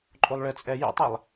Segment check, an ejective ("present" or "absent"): present